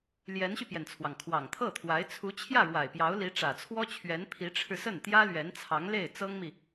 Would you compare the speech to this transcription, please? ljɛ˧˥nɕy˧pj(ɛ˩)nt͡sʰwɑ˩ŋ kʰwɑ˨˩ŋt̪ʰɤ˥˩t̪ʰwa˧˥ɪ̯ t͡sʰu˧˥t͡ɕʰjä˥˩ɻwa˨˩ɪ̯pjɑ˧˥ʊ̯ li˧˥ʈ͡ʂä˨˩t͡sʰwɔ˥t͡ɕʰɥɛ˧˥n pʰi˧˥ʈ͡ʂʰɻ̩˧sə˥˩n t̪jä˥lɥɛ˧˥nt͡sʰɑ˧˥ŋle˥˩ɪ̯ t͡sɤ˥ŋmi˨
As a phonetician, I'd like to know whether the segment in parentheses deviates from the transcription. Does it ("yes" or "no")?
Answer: no